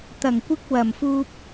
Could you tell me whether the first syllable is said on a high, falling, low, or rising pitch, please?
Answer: low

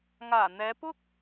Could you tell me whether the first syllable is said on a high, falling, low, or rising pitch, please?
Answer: low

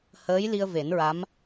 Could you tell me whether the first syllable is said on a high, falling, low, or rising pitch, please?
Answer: rising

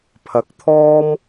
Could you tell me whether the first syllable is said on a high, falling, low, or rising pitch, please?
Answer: low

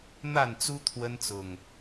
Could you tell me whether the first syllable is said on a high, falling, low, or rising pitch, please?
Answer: falling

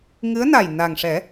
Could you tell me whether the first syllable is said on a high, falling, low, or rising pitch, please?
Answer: rising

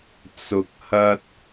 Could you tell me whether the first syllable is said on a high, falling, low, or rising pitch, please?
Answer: low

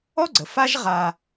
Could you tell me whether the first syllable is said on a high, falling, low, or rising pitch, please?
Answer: high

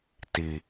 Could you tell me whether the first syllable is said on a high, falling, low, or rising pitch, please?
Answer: low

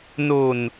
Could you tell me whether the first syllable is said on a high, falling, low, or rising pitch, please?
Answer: low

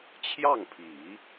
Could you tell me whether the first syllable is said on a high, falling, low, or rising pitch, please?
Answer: falling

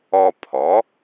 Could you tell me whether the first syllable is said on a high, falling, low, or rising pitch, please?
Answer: high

